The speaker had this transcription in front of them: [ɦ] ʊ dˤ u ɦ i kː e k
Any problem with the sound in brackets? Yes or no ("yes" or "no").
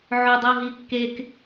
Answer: yes